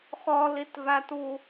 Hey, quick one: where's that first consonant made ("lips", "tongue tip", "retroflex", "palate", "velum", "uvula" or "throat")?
uvula